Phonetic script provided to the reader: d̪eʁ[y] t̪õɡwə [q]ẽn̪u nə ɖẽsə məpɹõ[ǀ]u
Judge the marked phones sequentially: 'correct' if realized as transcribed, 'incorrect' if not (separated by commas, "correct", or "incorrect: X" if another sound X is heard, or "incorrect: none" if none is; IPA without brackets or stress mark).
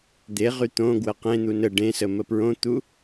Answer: correct, correct, incorrect: t̪